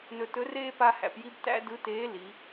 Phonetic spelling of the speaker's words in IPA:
nɵ˧tɵ˧˥reː˥ pa˥hæ̰˧pji˥b tæ̰˥dɯ˧˥teː˧˥ li˩˧

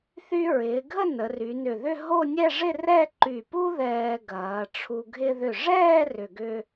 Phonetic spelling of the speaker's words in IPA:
θy˥ ɹɪː˩˧ɡʱə˥˧ nə˩˧ry˩˧nʏ˧˩ðʏ˥˧ ɦo˥˧nʲɛ˥˧ʐɪ˥˧ rɛ˥˧ǃy˧˩pu˥ ðɛː˧ ɡɐː˩˧ʈ͡ʂʰu˧ ɡʱɪ˧ðʏ˧˩ʐɛː˥˧ rʏ˧ɡʏ˥

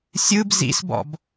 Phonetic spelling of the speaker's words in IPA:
sʲɯb zḭsbɔ̰b

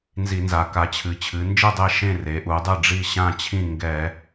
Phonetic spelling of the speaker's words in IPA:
nzi˧˩˧nza˩˧ ka˩˧t͡ɕʰɨ˩˧ t͡ɕʰɨ˩˧nd͡ʒɨ˥˨dˤe˥˨ ʃẽ˥˨re˩˧ʔu˩˧dˤɨ˥˨ ɖ͡ʐi˥˨ɕã˥˨t͡ɕʰĩ˥˨ ŋɡɛ˧˩˧

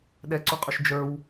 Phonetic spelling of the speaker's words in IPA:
ɗɛǀuqʼɵʃ d͡ʒə˞w

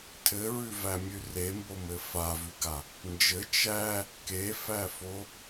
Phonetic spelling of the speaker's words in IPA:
tʰɘɹʉvæmʲʉ rembomɘ favʉɡa | nd͡ʒɘ t͡ʃæ | kefæfo

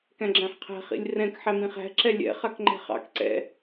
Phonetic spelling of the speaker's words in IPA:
kæ̃ɡ͡ǁæ̃ħqʰæ̤ χḭlʲrɛ̃k ħæmĩχæ̤ ǁɛlʲɛ̰ χakŋ͡ǃæ̤χɑ̰k ǀɛ̰

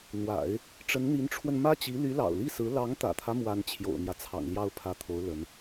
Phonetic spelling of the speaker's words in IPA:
n̪wa̰˨˩˦ɪ̯ | ʈ͡ʂə˧˥nn̪i˧˥nʈ͡ʂʰwə˧n mä˥t͡ɕi˧˥ ly˧˥lɑ̰˨˩ʊ̯li˥˩sɹ̩˧˥ lɑ˧˥ŋt̪ä̰˨˩t̪ʰä˦ mwa˥n t͡ɕʰjo̰˨˩ʊ̯n̪jä˦t͡sʰɑ̰˨˩ŋ ljɑ˥˩ʊ̯pʰä˧˥t̪ʰo˧˥ʊ̯ lə˧˥n

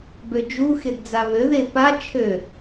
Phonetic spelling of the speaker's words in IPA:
bød͡ʒu xedd͡zaβø ðepa t͡ʃʰø

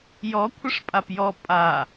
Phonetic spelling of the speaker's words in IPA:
jɔ kʷʰəʂpʼapjɔ pʼa

